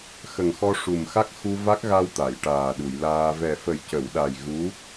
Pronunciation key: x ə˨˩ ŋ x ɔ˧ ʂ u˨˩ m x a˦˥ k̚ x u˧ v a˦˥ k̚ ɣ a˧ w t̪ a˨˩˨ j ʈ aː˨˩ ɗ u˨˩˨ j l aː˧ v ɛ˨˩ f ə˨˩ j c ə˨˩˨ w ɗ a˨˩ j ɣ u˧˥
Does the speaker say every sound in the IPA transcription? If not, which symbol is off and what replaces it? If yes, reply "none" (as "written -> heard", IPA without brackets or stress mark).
none